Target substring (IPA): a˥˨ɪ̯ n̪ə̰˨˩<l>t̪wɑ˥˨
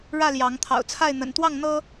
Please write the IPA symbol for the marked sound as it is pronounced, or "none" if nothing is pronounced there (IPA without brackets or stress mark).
n